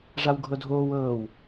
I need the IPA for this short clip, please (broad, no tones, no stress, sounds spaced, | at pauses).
ʐ a w ɡʱ ɤ dʱ oː w ɤː w